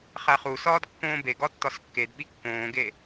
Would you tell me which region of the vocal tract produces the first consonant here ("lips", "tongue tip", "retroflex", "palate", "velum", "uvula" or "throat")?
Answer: uvula